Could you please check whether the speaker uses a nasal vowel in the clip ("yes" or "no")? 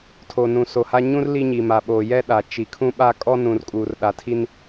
yes